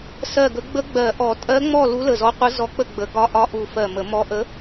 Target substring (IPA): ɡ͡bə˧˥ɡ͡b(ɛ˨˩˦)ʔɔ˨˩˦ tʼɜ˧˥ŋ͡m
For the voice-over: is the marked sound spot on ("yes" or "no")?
no